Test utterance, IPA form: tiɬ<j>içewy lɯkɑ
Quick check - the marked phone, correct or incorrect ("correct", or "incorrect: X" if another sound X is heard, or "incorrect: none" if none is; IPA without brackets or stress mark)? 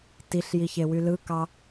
correct